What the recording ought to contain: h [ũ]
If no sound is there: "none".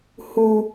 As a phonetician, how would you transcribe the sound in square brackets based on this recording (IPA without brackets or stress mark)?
u